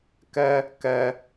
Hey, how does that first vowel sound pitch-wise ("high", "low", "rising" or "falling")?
high